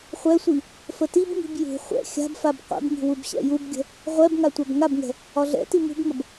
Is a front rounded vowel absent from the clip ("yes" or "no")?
yes